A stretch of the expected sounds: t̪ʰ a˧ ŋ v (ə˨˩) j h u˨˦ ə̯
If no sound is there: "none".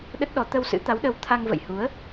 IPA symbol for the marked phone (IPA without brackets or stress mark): ə̰˧˨